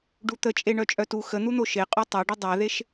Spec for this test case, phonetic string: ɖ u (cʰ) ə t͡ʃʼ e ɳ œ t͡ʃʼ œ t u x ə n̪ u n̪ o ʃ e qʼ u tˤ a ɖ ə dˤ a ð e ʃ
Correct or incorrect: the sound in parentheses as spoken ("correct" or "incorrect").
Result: incorrect